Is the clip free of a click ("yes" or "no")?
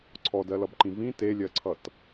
no